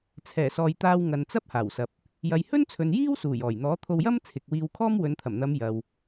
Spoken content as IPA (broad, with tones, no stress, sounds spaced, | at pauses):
t͡sʰ ɛː˨˩ s ɔː˨ j t̪ aː˧ w ŋ ɐ˨ n t͡s ɐ˥ p̚ h aː˨˩ w s ɐ˨ p̚ | j ɐ˨ j h ɵ˥ n t͡sʰ ɵ˨ n j iː˥ w s uː˨˩ j ɔː˨˩ j n̪ ɔː˨˥ t̪ʰ o˧ w j ɐ˥ m t͡sʰ ɪ˨ k̚ w iː˧ w kʰ ɔː˥ m w ɵ˨˧ n t̪ʰ ɐ˨˩ m n̪ ɐ˨˧ m j ɐ˨ w